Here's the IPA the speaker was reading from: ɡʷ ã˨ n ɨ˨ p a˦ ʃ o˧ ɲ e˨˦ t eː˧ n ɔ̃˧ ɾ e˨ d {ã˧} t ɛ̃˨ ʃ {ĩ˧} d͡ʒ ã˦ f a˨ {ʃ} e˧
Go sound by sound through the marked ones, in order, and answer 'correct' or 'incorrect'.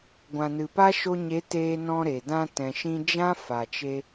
correct, correct, incorrect: t͡ʃ

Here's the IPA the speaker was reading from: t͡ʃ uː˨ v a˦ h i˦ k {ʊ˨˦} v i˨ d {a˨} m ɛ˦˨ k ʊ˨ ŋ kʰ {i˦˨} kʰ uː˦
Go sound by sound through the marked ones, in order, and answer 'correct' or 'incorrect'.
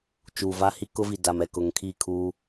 incorrect: ʊ˦, correct, correct

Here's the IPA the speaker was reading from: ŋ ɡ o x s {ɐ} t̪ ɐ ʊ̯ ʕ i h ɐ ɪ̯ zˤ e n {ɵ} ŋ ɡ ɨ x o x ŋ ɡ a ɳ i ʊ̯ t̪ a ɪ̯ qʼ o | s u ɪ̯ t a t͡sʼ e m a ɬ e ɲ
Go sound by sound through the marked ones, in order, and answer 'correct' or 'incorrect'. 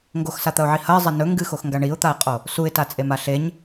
incorrect: a, correct

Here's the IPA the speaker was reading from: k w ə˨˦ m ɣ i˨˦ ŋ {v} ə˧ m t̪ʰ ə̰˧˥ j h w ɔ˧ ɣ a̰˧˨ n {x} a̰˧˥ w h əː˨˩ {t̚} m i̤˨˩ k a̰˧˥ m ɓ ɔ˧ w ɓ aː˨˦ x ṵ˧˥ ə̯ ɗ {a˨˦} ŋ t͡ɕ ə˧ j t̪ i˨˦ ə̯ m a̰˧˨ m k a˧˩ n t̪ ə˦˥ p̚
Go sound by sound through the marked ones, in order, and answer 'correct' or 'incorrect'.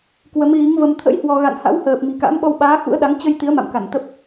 correct, incorrect: h, incorrect: p̚, correct

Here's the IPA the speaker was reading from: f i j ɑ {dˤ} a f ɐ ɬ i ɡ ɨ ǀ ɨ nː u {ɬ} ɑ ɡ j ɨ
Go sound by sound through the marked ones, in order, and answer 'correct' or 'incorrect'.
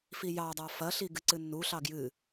correct, correct

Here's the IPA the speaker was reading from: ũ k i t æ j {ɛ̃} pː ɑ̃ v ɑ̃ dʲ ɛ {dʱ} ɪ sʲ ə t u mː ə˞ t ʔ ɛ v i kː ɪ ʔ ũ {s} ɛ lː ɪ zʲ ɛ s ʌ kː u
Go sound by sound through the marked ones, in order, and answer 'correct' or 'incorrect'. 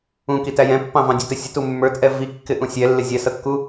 correct, incorrect: t, incorrect: sʲ

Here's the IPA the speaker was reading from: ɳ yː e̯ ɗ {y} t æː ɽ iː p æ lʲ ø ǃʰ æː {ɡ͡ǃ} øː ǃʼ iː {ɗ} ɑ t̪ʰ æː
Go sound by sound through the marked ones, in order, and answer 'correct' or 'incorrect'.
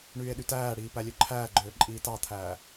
correct, correct, incorrect: t

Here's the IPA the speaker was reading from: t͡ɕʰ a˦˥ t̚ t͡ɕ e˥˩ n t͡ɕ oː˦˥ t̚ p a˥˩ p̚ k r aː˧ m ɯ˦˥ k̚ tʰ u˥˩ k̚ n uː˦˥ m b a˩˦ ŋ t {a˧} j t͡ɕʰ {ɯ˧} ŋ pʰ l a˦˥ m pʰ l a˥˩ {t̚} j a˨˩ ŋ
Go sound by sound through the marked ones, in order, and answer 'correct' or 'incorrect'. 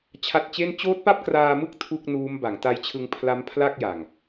correct, correct, incorrect: k̚

